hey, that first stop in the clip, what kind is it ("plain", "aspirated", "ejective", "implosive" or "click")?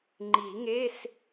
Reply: click